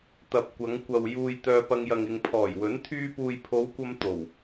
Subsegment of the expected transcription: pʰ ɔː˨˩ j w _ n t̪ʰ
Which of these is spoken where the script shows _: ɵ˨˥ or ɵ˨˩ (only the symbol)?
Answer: ɵ˨˥